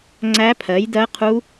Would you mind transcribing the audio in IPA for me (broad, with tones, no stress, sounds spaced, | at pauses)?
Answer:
ŋ͡ǀ æ˦˥ pʰ ɜ˨˥ j d ɜ˦˥ qʰ u˦˥